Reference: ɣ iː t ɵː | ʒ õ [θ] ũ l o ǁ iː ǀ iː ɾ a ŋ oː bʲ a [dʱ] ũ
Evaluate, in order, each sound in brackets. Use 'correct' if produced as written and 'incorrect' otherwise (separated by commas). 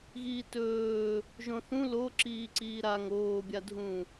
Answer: correct, correct